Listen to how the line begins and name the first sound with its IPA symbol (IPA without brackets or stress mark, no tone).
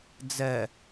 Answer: d͡z